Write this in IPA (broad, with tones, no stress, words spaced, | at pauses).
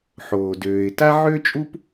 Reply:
ħoː˩ døː˩ɪ̯ta˥ ʕøː˥t͡ʃʼu˥p